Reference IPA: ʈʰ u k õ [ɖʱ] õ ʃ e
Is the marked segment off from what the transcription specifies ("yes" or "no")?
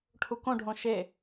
no